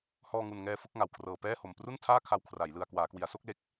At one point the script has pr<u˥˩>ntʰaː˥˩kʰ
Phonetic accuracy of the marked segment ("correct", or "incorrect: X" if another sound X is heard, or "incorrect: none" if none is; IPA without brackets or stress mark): correct